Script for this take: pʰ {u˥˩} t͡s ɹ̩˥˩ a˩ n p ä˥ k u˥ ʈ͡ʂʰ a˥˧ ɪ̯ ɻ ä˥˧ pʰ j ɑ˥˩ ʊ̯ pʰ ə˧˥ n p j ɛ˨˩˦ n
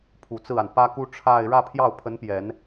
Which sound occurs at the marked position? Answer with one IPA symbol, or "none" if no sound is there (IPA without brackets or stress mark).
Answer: u˨˩